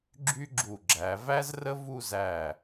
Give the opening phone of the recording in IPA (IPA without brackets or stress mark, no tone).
ɡ͡ǁ